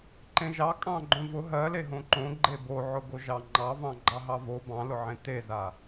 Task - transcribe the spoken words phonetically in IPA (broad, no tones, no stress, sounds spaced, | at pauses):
ǃ ẽ ʒ ɑ kʼ ɑ̃ ɡ͡ǃ õ v ʊ ɦ ɜ l e ɦ õ ǃ õ ɡ͡ǃ e b o ʕ ʊ ɡ o ʒ ɑ ŋ͡ǃ ɑ v ɑ̃ ɡ͡ǃ ɑ ɦ ɑ v o b ɑ̃ l ʊ ʕ ẽ t e z a